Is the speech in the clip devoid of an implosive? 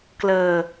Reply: yes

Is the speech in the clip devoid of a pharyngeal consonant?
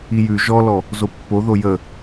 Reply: yes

